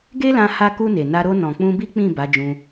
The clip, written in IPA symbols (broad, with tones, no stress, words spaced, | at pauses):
ɡe˦lã˧ ha˧ku˧ ne˨na˧ ɾo˧nɔ̃˨ k͡pũ˧bi˦ k͡pĩ˦˨ ba˨˦d͡ʒũ˧